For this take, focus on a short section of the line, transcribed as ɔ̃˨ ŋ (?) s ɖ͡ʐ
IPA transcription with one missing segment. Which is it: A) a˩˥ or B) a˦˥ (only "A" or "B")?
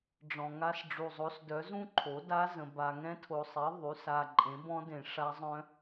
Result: B